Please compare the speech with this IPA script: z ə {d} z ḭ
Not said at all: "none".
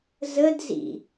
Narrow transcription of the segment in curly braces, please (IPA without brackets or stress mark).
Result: d